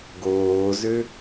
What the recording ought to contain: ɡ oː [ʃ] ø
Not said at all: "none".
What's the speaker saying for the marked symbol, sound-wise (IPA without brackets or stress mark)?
z